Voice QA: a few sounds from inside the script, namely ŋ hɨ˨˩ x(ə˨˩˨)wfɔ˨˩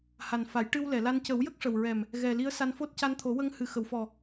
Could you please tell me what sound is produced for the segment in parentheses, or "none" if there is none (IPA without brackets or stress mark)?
ə˨˩˨